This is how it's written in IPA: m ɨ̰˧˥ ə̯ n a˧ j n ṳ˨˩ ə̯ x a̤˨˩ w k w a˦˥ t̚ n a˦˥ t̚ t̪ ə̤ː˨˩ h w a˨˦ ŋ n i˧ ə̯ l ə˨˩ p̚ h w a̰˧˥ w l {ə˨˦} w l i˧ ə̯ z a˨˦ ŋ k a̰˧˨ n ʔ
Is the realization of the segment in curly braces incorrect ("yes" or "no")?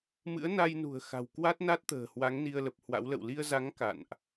yes